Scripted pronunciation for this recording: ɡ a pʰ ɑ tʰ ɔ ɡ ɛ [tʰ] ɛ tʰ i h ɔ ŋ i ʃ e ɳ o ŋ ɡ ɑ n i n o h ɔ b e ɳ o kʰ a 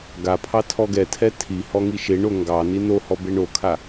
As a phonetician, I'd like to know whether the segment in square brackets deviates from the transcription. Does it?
no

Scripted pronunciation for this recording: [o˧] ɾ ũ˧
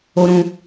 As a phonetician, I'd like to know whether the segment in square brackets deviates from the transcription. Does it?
no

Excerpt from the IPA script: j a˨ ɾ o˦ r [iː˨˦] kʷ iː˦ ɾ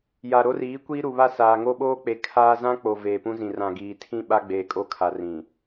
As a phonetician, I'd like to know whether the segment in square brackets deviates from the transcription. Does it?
no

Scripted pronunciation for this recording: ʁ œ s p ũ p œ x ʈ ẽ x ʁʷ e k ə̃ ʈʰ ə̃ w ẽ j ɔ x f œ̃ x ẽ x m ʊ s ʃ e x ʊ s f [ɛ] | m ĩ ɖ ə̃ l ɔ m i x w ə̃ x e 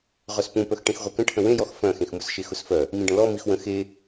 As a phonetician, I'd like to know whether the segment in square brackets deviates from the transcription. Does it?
yes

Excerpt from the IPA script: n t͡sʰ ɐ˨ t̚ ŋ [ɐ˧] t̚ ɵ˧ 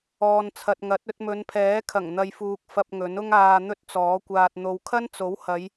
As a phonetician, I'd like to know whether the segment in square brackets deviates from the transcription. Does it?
yes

